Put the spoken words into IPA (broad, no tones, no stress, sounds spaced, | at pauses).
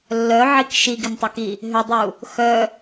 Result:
lː œ ʕ i k ʃ i ɡ ɪ n tˤ ʏ k i | ɦ ʏ dˤ u | x œ